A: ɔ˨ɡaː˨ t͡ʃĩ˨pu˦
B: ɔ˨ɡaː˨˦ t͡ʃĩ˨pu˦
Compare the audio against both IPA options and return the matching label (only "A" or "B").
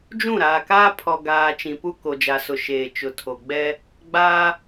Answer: A